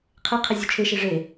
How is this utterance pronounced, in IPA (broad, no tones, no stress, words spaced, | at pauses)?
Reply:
qʰe qʰezʲut͡ʃʰeʃe ʐe